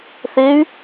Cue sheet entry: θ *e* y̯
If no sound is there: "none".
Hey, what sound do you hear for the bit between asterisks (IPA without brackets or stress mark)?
e